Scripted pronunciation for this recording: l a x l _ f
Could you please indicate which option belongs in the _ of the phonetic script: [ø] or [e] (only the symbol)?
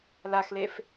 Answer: e